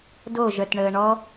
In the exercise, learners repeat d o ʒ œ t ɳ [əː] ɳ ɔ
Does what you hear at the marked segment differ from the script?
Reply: no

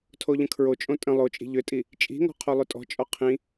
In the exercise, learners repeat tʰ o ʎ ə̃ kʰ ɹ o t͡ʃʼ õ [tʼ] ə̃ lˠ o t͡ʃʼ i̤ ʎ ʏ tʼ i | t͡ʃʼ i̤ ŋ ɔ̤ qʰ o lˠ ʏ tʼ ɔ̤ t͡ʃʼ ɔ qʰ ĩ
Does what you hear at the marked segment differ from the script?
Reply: no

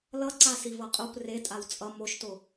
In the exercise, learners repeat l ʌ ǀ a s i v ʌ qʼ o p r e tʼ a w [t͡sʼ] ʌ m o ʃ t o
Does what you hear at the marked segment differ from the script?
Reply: no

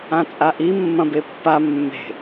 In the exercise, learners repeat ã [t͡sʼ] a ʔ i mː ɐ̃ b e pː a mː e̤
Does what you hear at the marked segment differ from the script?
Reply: no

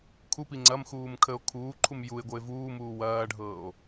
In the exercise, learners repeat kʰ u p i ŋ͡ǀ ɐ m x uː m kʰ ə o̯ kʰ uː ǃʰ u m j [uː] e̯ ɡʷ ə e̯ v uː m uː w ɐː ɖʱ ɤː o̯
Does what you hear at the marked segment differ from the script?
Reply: yes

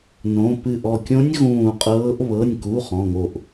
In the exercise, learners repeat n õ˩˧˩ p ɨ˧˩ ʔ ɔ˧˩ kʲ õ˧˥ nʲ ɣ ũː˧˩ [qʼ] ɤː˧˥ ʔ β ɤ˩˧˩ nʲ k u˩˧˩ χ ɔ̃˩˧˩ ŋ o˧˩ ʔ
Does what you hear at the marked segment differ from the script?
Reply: no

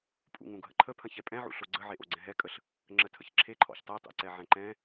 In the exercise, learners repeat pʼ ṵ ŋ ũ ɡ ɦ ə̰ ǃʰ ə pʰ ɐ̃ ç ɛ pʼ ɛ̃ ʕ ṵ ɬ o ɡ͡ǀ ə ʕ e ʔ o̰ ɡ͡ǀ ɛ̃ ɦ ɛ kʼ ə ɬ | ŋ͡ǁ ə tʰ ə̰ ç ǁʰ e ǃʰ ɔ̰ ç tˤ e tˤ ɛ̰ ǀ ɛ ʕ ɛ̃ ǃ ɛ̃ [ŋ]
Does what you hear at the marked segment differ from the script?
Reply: yes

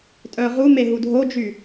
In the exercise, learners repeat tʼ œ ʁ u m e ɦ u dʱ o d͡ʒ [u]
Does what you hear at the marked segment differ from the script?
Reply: yes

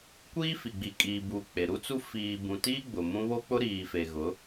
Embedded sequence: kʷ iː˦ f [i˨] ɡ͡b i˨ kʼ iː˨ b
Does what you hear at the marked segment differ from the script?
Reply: no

